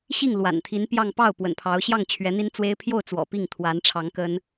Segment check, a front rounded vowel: absent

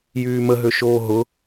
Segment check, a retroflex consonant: absent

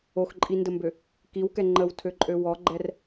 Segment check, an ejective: present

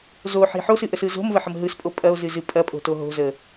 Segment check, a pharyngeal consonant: present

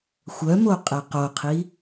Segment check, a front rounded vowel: present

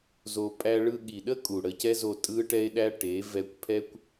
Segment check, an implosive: present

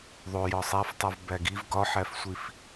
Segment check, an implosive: absent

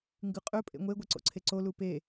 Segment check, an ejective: present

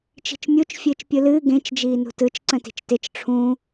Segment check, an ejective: absent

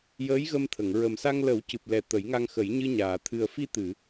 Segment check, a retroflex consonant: absent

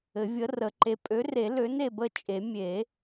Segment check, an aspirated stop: absent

